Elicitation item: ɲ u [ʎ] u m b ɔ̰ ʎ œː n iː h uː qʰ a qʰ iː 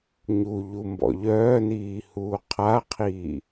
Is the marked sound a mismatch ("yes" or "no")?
no